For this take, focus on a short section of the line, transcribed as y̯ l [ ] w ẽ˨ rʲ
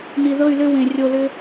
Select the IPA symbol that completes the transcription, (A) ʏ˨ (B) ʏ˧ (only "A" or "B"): B